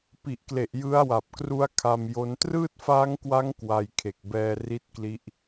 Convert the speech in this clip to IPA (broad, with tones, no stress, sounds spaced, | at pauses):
p i˨˩ ʔ k l e˨˩ ʔ j ɯ˦˥ a̯ w a˨˩ p̚ k r u˦˥ a̯ kʰ a˧ m j o˦˥ n t r ɯː˥˩ t̚ f aː˦˥ ŋ k w a˦˥ ŋ k w a˧ j kʰ e˨˩ k̚ b ɛː˧ r i˦˥ t̚ k l i˦˥ ʔ